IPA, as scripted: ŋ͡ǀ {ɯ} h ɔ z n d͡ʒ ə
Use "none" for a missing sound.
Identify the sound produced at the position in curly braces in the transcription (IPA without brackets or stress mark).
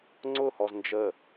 ʊ